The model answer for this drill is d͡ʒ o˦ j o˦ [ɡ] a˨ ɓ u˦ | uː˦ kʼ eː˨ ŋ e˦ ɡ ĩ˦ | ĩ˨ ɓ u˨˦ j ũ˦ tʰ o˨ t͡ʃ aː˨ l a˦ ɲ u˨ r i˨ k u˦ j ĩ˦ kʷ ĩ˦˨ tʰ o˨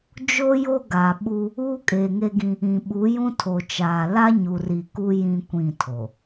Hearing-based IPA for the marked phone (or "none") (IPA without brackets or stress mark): ɡ